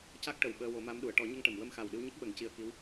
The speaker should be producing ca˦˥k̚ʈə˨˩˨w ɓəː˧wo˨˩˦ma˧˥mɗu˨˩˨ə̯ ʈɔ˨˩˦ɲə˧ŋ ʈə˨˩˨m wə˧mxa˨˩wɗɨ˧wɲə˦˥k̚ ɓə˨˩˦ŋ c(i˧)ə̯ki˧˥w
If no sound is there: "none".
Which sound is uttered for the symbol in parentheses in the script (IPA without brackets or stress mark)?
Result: i˧